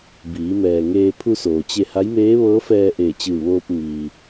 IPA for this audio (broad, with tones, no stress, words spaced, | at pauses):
biː˩˧mɛː˩ ŋeː˧ pʰu˧soː˩t͡ɕe˧ ha˧˥jmeː˧˥ʋɤː˧˥ fɛː˧ʔeː˧˩t͡ɕɯː˧˩ʋoː˧p̚ mi˩